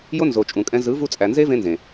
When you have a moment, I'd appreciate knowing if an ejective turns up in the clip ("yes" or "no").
yes